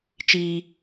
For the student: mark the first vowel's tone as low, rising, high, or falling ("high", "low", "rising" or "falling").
high